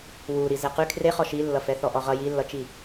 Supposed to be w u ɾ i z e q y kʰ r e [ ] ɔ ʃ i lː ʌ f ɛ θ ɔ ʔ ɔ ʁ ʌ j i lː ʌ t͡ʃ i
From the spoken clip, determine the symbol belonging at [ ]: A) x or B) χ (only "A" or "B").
B